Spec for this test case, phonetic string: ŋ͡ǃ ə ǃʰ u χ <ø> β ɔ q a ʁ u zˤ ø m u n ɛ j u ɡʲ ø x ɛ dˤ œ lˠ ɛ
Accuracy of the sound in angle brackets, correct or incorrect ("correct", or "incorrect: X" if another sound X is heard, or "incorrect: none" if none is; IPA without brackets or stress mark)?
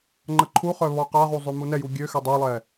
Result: incorrect: œ